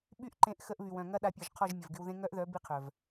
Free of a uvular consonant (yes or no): no